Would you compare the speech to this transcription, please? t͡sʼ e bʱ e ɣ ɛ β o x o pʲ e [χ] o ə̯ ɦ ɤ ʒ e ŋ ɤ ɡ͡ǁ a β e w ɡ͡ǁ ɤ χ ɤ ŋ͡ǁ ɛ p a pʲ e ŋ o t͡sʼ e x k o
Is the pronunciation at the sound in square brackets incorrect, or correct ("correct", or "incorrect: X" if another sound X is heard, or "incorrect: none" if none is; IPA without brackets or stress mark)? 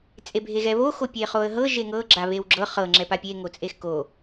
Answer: correct